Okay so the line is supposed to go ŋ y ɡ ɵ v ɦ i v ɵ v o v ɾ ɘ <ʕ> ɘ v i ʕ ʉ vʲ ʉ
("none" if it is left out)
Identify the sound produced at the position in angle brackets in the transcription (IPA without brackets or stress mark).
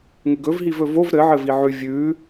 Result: ʕ